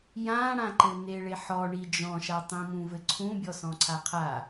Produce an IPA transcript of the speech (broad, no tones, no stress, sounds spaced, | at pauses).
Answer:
j ã ɽ ã ǃ ɘ n e ɭ e ħ ɔ ɳ i d͡ʒ ɔ̃ ʃ a tˤ ĩ m ũ v ɘ ǀʰ ũ bʲ ɔ s ɔ̃ ǀʰ a qʰ a